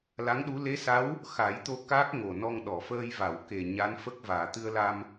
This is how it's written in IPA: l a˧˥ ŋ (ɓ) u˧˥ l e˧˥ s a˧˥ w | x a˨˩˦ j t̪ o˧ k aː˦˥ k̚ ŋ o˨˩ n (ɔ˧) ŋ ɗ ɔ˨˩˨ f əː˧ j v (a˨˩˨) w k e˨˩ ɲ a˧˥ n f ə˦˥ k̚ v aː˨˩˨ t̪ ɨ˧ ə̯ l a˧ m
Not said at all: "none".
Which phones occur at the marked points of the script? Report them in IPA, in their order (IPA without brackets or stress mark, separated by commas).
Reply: ɗ, ɔ˧, a˨˩˨